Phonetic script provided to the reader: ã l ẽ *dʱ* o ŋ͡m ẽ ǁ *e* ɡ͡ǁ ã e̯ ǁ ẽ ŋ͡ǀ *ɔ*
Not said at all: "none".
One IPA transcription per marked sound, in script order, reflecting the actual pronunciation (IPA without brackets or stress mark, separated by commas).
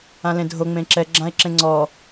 dʱ, ɛ, ɔ